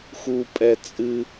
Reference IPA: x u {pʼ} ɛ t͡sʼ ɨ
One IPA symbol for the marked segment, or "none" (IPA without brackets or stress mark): pʼ